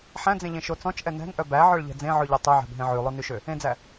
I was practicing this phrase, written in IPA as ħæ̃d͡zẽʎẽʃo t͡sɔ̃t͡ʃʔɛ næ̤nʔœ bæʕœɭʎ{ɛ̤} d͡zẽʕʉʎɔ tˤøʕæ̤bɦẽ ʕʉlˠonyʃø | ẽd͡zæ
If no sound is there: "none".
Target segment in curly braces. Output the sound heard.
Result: ɛ̤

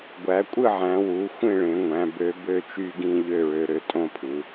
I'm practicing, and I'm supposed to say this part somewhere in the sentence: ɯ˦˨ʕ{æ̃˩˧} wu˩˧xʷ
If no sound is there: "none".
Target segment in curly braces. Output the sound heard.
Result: æ̃˩˧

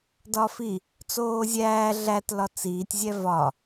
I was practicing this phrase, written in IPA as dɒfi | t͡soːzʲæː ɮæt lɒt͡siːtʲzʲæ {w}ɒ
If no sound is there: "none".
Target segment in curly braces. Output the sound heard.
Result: v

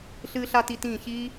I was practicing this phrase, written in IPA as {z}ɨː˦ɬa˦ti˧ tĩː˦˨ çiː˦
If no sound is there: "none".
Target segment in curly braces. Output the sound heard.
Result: ɬ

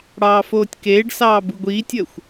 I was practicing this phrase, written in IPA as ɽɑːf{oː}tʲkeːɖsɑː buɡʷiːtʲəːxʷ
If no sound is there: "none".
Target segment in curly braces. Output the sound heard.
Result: oː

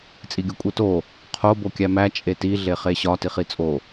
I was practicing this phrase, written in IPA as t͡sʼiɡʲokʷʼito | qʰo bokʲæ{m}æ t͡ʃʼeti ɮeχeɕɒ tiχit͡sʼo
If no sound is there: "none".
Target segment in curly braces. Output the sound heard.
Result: m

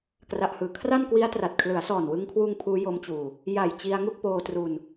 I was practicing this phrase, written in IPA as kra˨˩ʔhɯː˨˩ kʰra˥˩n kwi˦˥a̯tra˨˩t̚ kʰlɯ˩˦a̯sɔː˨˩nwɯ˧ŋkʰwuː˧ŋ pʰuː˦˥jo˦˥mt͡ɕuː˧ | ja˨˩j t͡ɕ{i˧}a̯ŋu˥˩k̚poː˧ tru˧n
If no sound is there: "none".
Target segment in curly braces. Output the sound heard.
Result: i˧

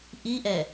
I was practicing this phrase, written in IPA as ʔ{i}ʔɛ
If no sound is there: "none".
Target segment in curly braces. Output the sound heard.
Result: i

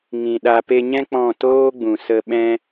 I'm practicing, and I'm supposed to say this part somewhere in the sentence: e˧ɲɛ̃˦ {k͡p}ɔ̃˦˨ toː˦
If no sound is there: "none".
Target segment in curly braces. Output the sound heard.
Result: k͡p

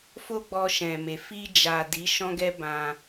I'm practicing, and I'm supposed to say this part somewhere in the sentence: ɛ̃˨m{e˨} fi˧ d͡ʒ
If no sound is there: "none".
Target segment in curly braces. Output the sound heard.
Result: e˨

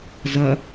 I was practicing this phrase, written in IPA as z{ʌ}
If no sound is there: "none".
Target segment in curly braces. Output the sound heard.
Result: ʌ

